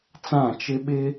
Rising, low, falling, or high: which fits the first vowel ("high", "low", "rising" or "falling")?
falling